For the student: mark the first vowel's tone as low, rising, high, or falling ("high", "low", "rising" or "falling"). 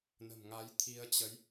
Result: low